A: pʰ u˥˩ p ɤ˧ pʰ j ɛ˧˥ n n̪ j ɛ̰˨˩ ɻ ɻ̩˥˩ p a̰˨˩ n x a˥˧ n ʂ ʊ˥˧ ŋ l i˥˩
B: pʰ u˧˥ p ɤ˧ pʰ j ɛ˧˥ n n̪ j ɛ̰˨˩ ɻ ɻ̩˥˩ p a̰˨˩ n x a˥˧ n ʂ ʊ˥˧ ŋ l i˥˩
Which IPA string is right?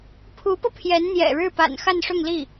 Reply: B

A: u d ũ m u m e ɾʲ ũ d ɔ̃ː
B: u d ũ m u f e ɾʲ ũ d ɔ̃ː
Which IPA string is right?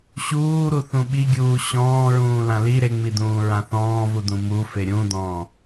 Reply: B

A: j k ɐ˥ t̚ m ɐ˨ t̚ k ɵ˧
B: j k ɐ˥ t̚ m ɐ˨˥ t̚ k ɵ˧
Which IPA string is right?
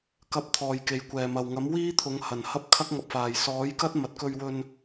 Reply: A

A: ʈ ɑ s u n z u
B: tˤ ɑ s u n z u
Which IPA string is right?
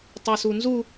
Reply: B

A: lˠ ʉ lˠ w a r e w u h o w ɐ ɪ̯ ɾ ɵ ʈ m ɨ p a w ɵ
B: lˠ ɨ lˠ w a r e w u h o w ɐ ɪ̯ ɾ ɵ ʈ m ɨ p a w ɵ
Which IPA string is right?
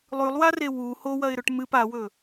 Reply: A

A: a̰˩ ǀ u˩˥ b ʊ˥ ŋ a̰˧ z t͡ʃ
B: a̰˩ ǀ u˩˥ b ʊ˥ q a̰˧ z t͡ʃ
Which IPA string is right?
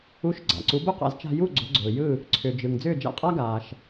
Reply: B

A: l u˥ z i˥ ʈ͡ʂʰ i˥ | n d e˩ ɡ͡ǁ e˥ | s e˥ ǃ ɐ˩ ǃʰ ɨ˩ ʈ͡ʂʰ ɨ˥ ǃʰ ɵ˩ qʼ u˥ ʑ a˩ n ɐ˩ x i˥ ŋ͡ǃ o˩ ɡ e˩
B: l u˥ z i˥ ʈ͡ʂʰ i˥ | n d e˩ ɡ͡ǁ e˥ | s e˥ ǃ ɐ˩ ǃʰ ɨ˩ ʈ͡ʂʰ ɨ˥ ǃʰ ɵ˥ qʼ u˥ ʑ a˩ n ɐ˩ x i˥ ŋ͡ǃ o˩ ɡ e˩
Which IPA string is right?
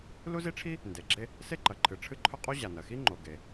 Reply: B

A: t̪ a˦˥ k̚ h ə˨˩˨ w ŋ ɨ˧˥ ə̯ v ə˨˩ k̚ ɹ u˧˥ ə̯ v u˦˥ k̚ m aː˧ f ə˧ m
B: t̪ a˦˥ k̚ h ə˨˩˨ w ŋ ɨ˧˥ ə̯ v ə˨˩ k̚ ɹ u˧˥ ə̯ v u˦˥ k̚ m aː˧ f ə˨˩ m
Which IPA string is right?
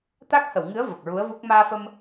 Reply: A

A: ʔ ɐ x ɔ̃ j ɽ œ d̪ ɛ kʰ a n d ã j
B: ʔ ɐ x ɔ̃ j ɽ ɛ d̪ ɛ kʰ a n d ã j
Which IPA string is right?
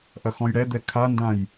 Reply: B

